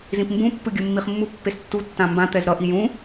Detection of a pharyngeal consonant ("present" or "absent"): absent